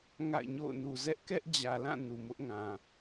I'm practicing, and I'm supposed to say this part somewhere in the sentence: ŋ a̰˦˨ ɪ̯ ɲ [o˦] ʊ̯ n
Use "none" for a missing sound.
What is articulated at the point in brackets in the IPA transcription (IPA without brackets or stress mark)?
o̰˦˨